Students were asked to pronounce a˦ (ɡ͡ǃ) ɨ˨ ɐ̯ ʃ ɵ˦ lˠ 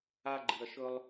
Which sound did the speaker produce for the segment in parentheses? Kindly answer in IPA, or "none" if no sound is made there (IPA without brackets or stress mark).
ɡ͡ǃ